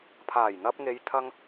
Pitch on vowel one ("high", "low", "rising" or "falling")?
low